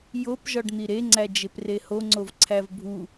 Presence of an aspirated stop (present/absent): present